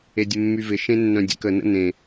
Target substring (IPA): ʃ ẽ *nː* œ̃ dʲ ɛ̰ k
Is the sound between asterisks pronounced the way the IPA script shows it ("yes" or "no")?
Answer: yes